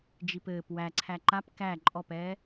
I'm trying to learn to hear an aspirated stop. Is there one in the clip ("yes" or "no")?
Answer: yes